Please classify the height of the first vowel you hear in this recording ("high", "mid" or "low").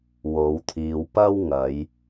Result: mid